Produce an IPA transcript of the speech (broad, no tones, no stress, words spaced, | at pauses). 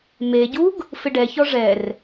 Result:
meɟuɡ | fɪɖɛçɔ ʐɛr